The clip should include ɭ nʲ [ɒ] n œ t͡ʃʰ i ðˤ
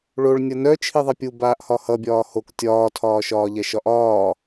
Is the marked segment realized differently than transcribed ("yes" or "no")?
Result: yes